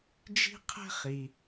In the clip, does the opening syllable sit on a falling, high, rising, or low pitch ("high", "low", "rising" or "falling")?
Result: high